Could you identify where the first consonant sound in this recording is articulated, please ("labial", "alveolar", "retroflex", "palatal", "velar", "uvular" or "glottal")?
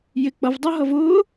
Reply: palatal